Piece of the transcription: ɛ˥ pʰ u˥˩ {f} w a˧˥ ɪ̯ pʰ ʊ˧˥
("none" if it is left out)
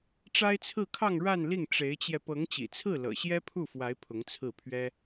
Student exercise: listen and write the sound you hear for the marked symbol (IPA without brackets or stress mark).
f